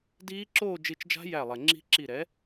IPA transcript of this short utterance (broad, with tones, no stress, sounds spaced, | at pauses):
d iː˦˥ ǁ oː˥˧ d͡ʒ i˧˩ t͡ʃ d͡ʒ a̤˦˥ j æ˧˩ lˠ ɛ˩ ŋ͡ǁ i̤˦˥ ǁ i˧˩ ɾ ɛ˩˥